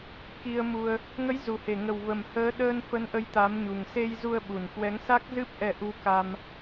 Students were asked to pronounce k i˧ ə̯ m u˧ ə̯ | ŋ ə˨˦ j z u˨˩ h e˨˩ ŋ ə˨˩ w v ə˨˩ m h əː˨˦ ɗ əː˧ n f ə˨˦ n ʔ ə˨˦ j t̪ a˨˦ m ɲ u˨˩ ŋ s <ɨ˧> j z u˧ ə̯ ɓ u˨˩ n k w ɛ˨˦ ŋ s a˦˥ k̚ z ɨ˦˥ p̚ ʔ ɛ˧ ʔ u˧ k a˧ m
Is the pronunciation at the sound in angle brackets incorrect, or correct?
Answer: incorrect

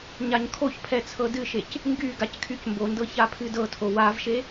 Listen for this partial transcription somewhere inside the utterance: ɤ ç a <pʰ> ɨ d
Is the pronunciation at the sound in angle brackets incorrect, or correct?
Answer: correct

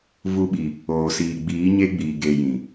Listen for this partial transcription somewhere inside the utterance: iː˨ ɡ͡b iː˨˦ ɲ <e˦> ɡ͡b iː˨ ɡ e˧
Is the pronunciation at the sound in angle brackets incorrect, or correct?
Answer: correct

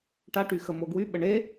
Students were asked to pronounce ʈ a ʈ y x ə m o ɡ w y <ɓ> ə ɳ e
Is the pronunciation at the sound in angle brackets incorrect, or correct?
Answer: correct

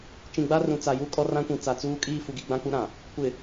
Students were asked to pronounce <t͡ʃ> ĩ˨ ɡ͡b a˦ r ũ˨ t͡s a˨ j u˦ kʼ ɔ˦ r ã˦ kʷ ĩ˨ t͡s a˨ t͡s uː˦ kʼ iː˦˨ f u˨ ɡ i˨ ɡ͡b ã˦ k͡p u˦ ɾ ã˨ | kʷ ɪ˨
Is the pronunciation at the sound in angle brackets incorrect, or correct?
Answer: correct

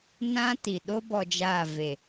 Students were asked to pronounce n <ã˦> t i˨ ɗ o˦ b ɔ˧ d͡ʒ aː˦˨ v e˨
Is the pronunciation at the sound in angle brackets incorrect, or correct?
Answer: correct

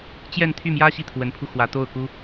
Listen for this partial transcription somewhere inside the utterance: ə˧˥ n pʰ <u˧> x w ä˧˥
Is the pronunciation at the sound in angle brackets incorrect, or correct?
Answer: correct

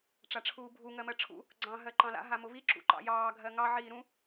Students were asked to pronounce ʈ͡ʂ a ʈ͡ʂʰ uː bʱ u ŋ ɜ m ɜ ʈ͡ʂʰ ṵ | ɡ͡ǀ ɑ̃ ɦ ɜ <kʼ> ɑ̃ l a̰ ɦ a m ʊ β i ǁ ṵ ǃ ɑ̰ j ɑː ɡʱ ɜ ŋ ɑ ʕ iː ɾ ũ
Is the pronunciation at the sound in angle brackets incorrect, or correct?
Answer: incorrect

